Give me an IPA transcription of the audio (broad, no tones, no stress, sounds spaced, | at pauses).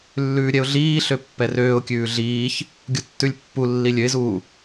lː ʉː ɾʲ ɛ ʊ̯ ɮ iː ɬ ø pː ɛ r øː ʊ̯ kʲ ʉː ɮ iː ç | ɡʲ u tː ʉ lʲ pː u lː i lʲ ø ɪ̯ z uː